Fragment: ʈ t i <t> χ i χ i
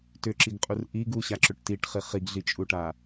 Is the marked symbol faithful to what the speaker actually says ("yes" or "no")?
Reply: no